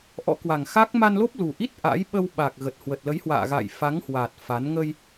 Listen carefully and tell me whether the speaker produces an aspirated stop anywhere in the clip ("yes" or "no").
no